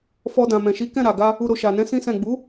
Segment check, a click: absent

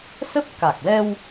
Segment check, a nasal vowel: absent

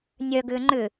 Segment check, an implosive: absent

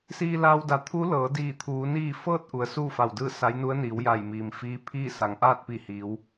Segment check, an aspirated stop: present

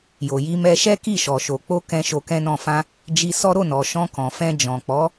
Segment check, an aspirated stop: absent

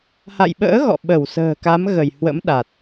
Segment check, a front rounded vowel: absent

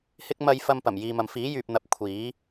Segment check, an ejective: absent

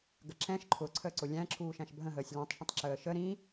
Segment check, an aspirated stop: present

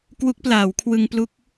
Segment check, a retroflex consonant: absent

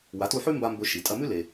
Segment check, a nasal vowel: absent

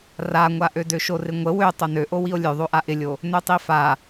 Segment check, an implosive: absent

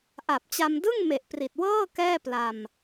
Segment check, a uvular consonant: absent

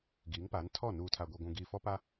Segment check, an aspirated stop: present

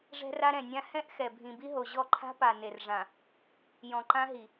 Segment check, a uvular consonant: absent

